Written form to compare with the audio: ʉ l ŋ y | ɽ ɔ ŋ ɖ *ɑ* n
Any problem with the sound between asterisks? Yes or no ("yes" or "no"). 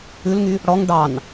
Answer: no